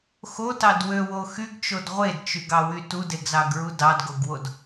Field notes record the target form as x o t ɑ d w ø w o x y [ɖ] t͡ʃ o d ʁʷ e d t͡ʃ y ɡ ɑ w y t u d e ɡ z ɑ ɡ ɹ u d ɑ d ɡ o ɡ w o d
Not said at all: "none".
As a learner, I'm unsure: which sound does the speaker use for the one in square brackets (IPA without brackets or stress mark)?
ɡ